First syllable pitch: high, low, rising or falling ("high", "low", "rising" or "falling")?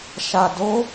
low